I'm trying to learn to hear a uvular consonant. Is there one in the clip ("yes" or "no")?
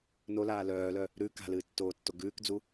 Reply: no